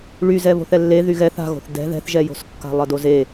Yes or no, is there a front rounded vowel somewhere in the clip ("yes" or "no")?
yes